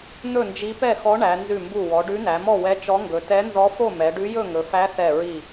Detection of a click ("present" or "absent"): absent